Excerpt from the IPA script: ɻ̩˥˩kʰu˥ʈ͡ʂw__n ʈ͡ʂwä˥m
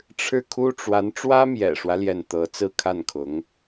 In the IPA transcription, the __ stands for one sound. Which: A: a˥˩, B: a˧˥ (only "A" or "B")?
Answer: B